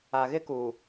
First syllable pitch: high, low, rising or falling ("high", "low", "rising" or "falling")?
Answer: low